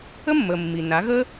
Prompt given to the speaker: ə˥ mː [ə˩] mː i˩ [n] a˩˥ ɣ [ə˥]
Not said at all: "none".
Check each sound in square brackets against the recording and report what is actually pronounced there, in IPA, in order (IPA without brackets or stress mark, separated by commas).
ə˩, n, ə˥